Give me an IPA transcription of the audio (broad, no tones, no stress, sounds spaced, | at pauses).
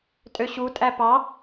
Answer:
tʼ ø ɕ u tʼ æ p ɑ